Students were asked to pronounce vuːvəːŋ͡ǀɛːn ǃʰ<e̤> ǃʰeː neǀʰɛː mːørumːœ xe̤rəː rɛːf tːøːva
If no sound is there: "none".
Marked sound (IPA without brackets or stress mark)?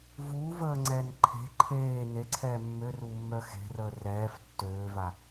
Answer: e̤